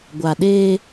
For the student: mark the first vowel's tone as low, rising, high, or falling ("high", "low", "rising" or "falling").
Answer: low